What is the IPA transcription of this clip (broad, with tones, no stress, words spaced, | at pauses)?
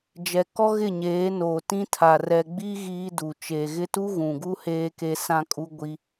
d͡ʒɛ˨kɔ˦ ɣɪ˦˨ɲeː˨˦noː˨ tĩ˦tʰa˨ rɛ˨ɡ͡bi˦ ɣiː˦du˨ t͡ʃe˨ɣɪ˦tu˦ ɣũ˨ɡu˦ heː˦ke˦ sã˦kʼu˦ ɡʷi˦